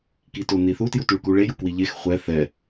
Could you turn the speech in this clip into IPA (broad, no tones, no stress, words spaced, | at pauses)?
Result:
kitoniθu tjutʉɭkuɭe jukwiʎex χʷɛ θɛ